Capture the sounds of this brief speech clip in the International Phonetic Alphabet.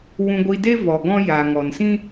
w ũ˧ ɡʷ i˧ d e˦ v ɔ˨ ɡ ɔ̃˧ j a˨ ŋ ɔ˨ n s ĩ˦

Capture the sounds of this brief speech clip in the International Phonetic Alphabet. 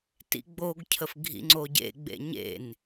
t ḭ ɡ͡b o ɡ cʰ ə f ɡʱ ḭ ŋ͡ǀ o ɟ ḛ ɡ͡b ḛ ɲ ḛ n

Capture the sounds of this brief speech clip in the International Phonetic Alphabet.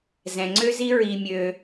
z ɛ̃˨ ŋ͡ǀ ø˦ z i˦ ɹ i˧ mʲ ø˧

